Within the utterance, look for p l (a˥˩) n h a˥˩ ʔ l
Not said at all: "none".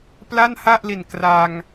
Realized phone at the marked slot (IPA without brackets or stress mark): a˥˩